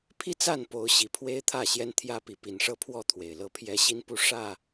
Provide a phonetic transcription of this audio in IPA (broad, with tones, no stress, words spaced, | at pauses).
pʰi˦t͡sa˥˨n po˨˦ʊ̯ɕi˨˩ pʰwe˦ɪ̯t̪ʰä˥˨ɕjɛ˦nt̪ʰjä˦ pi˨˦pi˨˩nʂɤ˥˨ pʰwɔ˥˨t̪ʰwe˨˩ɪ̯lɤ˦pʰjɛ˦ ɕi˦npu˥˨ ʂä˥˨